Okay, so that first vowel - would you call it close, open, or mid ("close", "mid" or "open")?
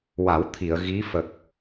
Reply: open